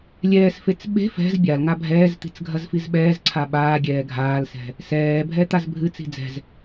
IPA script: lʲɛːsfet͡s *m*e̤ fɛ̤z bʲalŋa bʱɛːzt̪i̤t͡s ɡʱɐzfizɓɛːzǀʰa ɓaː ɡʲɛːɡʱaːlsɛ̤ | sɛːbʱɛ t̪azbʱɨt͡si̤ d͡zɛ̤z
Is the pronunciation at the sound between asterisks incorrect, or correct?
incorrect